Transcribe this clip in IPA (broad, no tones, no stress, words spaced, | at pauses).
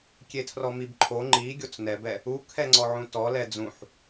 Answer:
kʲetʰrɔmibǃʰo ŋ͡ǃi ɡʲot͡snɛbɛ | u kʰɛŋ͡ǀɔʕũtɔ lɛd͡zũħ